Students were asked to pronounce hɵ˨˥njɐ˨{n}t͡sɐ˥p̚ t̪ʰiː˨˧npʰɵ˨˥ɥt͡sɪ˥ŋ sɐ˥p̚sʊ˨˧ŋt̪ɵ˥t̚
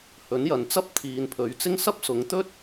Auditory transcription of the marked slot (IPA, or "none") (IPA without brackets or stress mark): n